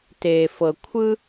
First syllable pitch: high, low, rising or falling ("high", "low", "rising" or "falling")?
low